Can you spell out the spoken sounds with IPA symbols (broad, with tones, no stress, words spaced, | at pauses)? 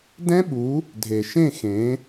dɛ̃˦ɓu˨˦ | dʱe˨ʃẽ˦˨xẽ˨˦